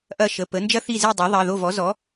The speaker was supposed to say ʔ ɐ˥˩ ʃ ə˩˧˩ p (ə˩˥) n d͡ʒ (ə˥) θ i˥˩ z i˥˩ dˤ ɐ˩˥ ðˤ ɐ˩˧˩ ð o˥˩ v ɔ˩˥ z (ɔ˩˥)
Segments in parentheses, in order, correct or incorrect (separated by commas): correct, incorrect, correct